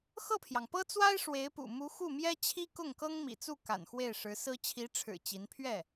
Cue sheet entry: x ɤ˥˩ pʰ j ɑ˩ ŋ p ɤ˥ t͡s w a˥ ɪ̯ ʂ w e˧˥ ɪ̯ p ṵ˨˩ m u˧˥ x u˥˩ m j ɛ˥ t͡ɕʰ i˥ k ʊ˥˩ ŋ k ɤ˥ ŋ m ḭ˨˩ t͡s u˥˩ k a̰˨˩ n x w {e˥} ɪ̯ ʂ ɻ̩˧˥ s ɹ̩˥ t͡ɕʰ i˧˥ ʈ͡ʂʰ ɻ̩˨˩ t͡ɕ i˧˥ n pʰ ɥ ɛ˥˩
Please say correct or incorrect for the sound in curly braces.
incorrect